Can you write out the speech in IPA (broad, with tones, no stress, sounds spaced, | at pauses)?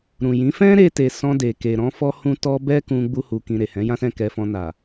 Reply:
ɾ ũ˨ j ĩ˨˦ f ɛ̃˦ ɾ e˧ t e˨ s ɔ̃˧ d e˨ k e˨ ɾ ɔ̃˧ f ɔ˦ h ũ˦ t ɔ˧ b ɛ˦ k ũ˧ ɡ͡b u˧ h u˨ k ĩ˨ ɾ e˨ h ɛ̃˨˦ j ã˦ s ɛ̃˦˨ k ɛ˧ f ɔ̃˧ n a˨